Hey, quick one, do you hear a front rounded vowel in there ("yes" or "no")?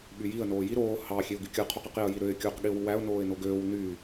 yes